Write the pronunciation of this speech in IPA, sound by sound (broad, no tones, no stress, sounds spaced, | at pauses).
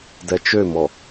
d ɛ t͡ʃ ø m ɔ